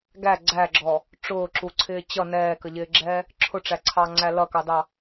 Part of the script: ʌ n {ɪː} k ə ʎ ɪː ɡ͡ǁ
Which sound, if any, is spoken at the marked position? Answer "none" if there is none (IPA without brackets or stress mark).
ɛː